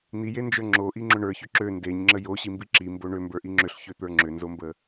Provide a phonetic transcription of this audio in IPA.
n̪ i j e n d͡ʒ ə˞ ŋ͡ǁ o ʔ i ŋ͡ǁ ʏ ɳ ə˞ ç ʏ ǁ ø n d e ɲ ŋ͡ǁ ə j o ɕ i m b i ǁ i m b o ɳ ø m b ə˞ ʔ i ŋ͡ǁ ʏ ɬ ç ø t̪ ə˞ ŋ͡ǁ ʏ n z o m b ə

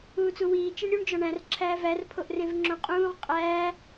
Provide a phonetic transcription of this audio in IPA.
uː t͡s u w iː t͡ʃ e ɳ ɾʲ u ɳ d͡ʒ ɒ ɳ æ̃ r ǁʰ æː v æ r pʰ o ʔ r ẽ v ŋ͡ǁ õ qʼ ũː ʁ qʼ æː

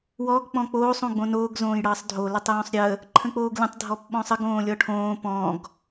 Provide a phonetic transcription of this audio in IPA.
w ɔ ɡ k͡p ɔ̃ k͡p oː sˤ õ ɡ͡b õ n oː ɡ z õː j ɽ ʌː sˤ dʱ o l ə tˤ j õ sˤ ɾʲ ə | ǃʰ ə̃ k͡p oː ɡ lʲ ə̃ tˤ dʱ ɔ p ɓ ɔ̃ sˤ ə ɡ õː lʲ ɔ ʈʰ õː p ɔ̃ ɡ

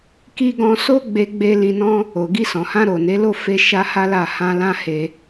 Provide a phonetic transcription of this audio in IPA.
k i˧ ɡ ɔ̃˧ s o˦ ɡ͡b e˧ ɡ͡b e˧ l ĩ˧ n ɔ̃˦ | o˨ ɡ i˧ s ɔ̃˨ h ã˧ ɾ o˨ n e˨˦ l o˦˨ f e˧ ʃ a˦ h a˦ l a˦˨ h ã˧ l ã˦ h e˧

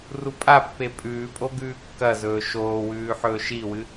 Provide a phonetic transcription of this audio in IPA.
r u pʼ a pː e pʼ ʉː pʼ o ɡ ʉː kː ɐ z ɵː ʃ oː w ʉː ħ ɵː ʃ i w ɨ

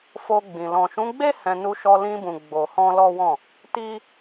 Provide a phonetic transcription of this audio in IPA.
f o˧ ɡ͡b ĩ˨ l ɔ̃˨ ʃ ũ˨˦ ɡ͡b e˦ h ɛ̃˧ n u˧ ʃ ɔ˧ l ĩ˧ b ũ˨ ɡ͡b o˨ h ɔ̃˧ l ɔ˦ w ɔ̃˦˨ | t i˦

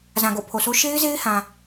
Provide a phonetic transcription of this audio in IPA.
z ã˨ ɡ o̰˦˨ pʰ o˨ sʰ o˦ ʃ e˦ ɪ̯ z e˦ ɪ̯ h ã˨

